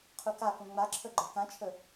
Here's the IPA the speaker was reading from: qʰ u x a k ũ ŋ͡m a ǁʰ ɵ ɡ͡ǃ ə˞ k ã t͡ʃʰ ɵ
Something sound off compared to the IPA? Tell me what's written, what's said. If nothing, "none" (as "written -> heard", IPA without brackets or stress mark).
x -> k